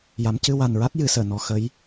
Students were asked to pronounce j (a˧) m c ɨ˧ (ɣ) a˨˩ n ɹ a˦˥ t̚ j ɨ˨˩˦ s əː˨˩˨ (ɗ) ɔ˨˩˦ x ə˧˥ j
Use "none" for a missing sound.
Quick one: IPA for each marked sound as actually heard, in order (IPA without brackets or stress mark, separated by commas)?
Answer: a˧˥, w, n